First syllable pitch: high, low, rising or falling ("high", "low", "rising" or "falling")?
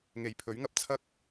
low